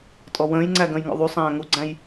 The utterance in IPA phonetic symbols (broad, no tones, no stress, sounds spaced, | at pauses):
tʼ ɔ w ə̃ː j ŋ͡ǀ æ ɡ ə̃ː j ŋ ɔ̰ ðˤ u sˤ æ̃ː ŋ u ɡ͡ǀ æ̃ j